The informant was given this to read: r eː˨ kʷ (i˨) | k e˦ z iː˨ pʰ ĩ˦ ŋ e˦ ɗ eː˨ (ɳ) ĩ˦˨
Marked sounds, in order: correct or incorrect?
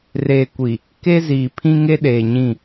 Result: correct, incorrect: ɲ

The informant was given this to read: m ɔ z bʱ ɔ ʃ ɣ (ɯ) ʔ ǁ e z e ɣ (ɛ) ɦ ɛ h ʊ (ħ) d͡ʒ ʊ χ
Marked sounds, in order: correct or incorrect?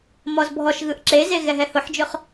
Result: correct, correct, correct

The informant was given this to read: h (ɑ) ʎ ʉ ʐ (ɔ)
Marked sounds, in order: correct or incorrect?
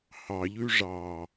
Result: correct, incorrect: ɑ

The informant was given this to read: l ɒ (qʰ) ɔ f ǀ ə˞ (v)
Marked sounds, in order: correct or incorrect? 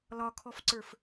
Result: incorrect: kʰ, incorrect: f

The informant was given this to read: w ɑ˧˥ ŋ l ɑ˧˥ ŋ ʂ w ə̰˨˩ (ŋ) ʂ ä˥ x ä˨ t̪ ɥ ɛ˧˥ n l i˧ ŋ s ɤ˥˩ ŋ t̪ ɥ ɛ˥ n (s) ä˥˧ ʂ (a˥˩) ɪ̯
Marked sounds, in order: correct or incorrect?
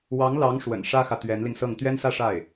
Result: incorrect: n, correct, correct

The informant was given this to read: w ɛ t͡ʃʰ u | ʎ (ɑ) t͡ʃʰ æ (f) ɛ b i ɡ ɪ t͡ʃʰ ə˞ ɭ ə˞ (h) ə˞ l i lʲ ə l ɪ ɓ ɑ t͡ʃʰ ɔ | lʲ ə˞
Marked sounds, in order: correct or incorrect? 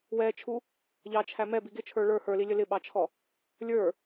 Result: correct, incorrect: m, correct

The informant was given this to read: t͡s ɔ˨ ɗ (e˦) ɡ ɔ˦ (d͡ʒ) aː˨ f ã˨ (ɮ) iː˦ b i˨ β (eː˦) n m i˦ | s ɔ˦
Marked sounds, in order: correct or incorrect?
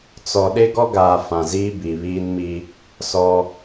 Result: correct, incorrect: ɡ, incorrect: z, incorrect: iː˦

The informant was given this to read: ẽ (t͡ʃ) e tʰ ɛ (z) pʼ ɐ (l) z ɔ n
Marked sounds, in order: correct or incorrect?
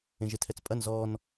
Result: incorrect: ʒ, incorrect: t͡s, incorrect: n

